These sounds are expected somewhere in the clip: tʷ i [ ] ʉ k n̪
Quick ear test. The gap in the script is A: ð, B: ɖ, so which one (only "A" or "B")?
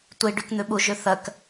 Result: B